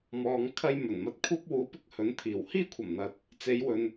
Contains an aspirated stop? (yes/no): yes